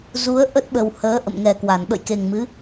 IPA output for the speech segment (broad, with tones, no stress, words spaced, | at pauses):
zu˨˦ə̯ ʔə˦˥t̚ɓə˨˩w həː˨˦ ʔə̰˧˨mŋɛ˨˩kwa˧˩n ɓə̰˧˨jke˨˩ŋmɨ˨˦